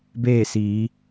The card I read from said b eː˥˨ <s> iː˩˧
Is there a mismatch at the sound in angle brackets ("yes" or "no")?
no